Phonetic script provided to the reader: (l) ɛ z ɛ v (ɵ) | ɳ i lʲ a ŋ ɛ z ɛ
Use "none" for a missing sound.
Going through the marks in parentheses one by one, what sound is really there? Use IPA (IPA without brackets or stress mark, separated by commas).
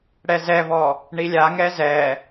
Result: ɽ, ɔ